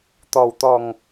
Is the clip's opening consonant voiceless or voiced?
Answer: voiceless